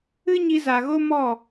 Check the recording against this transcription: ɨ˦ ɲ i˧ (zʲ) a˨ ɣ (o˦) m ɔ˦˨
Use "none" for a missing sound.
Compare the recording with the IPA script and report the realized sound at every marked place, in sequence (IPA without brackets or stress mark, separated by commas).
z, o˦